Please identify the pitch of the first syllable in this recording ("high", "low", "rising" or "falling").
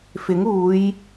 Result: rising